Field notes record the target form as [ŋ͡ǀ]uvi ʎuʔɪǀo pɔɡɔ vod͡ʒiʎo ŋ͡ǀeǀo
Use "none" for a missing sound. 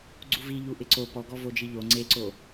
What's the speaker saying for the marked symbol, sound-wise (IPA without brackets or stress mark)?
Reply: ɡ͡ǀ